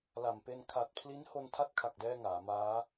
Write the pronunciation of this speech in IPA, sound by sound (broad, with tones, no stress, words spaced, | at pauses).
la˨˩mpe˧n kʰa˨˩t̚pʰli˦˥nho˧n tʰa˦˥t̚kʰa˨˩k̚dɛː˧ ŋaː˩˦maː˦˥